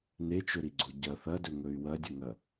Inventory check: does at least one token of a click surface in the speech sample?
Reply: yes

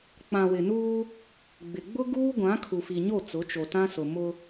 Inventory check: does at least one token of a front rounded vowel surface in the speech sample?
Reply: no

